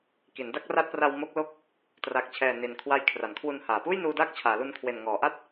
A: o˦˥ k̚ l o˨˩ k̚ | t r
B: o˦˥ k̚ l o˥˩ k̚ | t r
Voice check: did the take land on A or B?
B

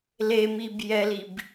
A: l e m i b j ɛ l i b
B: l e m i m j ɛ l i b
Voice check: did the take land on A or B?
A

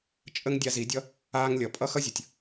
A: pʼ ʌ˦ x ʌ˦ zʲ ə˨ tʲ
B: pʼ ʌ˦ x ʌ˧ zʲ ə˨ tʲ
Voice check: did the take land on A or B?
A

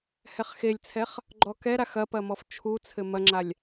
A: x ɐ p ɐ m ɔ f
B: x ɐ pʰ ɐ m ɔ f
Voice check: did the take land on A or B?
A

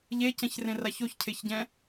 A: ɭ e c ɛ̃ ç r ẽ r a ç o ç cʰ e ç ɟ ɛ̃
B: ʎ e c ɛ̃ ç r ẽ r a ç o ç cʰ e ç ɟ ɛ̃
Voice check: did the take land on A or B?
B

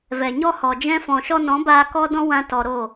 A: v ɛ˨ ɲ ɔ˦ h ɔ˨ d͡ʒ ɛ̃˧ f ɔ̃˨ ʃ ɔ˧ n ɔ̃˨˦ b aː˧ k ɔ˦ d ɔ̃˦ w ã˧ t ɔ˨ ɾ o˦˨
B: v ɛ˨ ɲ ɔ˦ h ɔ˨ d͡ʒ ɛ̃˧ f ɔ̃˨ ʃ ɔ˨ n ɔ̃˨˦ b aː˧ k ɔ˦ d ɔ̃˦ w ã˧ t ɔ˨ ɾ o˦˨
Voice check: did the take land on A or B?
A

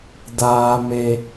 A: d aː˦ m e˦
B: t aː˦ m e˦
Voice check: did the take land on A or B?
A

